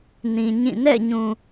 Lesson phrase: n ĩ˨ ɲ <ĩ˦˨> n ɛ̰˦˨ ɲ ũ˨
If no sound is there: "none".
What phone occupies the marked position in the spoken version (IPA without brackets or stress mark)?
ĩ˦˨